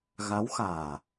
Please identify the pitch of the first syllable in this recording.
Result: rising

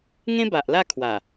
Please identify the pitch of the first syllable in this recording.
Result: high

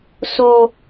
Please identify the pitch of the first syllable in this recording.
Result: high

